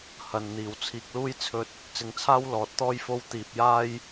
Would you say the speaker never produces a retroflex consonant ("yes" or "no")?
yes